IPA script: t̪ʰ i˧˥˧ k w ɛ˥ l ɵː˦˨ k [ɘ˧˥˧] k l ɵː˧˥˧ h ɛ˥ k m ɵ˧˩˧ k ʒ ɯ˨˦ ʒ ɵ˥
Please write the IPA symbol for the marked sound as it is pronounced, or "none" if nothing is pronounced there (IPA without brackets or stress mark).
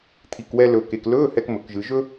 e˧˥˧